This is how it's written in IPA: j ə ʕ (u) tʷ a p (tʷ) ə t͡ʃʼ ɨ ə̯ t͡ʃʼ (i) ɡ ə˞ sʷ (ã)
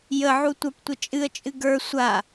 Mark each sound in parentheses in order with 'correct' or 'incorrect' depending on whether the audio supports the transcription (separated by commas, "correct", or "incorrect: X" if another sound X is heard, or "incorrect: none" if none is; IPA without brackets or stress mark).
correct, correct, incorrect: ɨ, incorrect: a